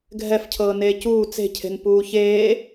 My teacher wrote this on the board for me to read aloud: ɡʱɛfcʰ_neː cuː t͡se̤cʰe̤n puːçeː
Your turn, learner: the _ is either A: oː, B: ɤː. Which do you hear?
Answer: B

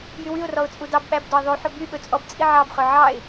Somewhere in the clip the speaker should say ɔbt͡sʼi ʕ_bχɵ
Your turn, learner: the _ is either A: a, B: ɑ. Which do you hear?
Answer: B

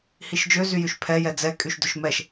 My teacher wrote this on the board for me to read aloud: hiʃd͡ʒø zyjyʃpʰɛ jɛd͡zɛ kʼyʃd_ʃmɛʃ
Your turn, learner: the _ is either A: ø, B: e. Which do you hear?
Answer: A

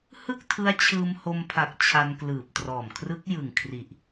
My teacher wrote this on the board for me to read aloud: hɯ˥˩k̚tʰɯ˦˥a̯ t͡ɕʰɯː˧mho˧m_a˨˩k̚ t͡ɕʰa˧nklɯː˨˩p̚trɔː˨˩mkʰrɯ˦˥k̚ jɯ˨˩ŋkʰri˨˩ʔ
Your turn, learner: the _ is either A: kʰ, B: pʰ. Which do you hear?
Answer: B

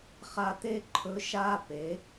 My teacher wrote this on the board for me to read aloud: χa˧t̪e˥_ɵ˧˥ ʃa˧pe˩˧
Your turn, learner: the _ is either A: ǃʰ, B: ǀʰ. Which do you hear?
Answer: A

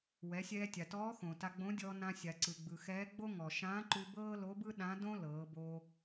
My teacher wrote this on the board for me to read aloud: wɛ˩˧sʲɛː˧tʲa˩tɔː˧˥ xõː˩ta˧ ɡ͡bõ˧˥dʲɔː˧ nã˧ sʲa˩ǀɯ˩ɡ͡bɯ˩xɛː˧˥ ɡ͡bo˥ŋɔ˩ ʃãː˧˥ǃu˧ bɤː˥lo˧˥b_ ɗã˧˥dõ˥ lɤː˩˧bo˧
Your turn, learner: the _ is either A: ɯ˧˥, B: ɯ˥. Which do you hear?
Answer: B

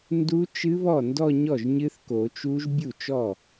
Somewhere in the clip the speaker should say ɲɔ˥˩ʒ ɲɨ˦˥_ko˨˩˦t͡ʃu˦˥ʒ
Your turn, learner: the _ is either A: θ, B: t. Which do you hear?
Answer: A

